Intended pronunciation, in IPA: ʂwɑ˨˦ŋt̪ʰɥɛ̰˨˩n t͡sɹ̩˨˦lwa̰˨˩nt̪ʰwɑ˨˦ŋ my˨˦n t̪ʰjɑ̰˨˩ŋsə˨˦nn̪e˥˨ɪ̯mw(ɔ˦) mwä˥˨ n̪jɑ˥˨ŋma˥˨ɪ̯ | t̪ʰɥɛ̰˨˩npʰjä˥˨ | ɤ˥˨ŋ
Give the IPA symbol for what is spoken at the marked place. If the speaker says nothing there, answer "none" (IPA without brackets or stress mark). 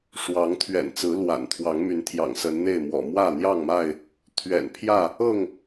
ɔ̰˨˩